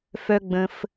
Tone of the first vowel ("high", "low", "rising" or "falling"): high